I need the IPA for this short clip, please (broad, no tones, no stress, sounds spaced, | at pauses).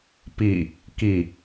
p i | k i